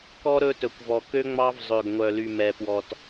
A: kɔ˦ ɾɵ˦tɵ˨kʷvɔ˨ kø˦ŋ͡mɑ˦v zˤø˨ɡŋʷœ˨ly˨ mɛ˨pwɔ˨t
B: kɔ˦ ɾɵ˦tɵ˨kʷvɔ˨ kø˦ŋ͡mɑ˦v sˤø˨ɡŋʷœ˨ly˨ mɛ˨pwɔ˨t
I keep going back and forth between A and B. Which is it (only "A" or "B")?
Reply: A